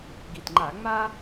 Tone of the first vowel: low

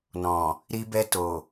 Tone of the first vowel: low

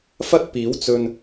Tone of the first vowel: high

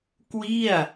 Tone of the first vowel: falling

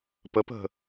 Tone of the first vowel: rising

